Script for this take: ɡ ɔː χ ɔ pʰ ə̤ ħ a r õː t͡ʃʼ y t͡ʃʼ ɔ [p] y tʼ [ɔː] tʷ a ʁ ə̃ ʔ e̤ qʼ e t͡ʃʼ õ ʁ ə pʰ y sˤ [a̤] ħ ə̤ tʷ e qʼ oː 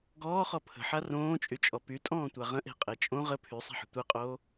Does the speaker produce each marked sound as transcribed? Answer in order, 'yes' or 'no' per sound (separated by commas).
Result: yes, no, yes